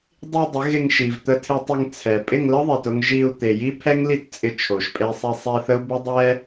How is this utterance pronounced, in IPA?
dˤ i˧ dˤ ɪ˨˦ ɣ ɪ˧ ŋ ʃ i˨ v t̪ ə˧ tʰ e˧ tˤ ɪ˧ ŋ t͡sʰ ɛ˨ pʼ ɪ˦˨ ŋ l ə˦ ðˤ e˨ t ʊ˧ ŋ ʒ i˧ u̯ t̪ e˨ j i˦ pʰ ɛ˦ ŋ l i˦ t t͡sʼ ɪ˧ t͡ʃʰ o˨ ʃ pʼ e˧ sˤ i˧ sˤ i˧ θ ə˦ u̯ b ɪ˦ dˤ ɛ˦

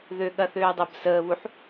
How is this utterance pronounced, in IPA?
ð ø ɠ ɐ θ øː dˤ əː b s əː β u ħ

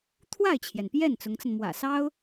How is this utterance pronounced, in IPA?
t̪ʰ w a˥˩ ɪ̯ t͡ɕʰ j ɛ˩ n p j ɛ˥˩ n t͡s ʊ˧˥ ŋ t͡s ə˧ n m w ä̰˨˩ s ɑ˥ ʊ̯

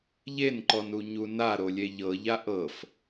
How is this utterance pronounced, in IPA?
ʎ e n ǃ ɔ n u ɲ u n a ɾ o lʲ e ʎ ɤ ʎ a ʔ ɤ f

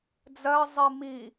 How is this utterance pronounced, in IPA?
d͡z ɜ zˤ i m i

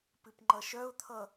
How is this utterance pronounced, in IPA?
p ɨ p ŋ͡ǃ ʌ ʃ œ ʊ̯ t̪ʰ ʌ

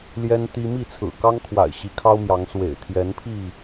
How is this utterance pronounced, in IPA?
l j ɛ˦ n t̪ i˦ m i˥˨ t͡sʰ ɹ̩˨˩ k ɑ˦ ŋ kʰ w a̰˨˩ ɪ̯ ɕ i˨˦ kʰ ɑ˦ ʊ̯ m j ɑ˨˦ ŋ s w ḛ˨˩ ɪ̯ t̪ʰ j ɛ˨˦ n pʰ i˥˨

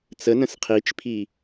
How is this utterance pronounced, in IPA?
t͡s ə n ə̃ s qʰ i t͡ʃ pʰ i

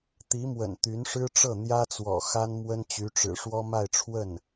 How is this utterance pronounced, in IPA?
t̪ i˧˥ m w ə̰˨˩ n t̪ y˧˥ n ʂ ɻ̩˥ ʈ͡ʂ ɤ˥˩ n̪ j ä˥ t͡s w ɔ̰˨˩ x a˥ n m w ə˥ n t͡ɕ y˧˥ ʈ͡ʂ ɻ̩˨˩ ʂ w ɔ˥ m a˥˧ ɪ̯ ʈ͡ʂʰ w ə˥˩ n

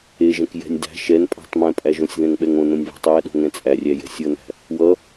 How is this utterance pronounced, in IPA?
e ʒ ɛ̃ k j ɛ̤ nʲ d æ̤ ʃ ɛ n pʼ æ̤ tˤ m ɛ̃ pʼ æ ʒ õ sʲ ð ɛ̃ ŋ ɓ ɛ ŋ õ n õ nʲ β ɛ̤ tˤ j æ ɗ o̤ ŋ ɛ̃ t͡sʼ æ rʲ æ j ɛ̤ sʲ ʌ n æ̤ | w ʌ

